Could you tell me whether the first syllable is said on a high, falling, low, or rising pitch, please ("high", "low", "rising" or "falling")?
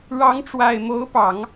rising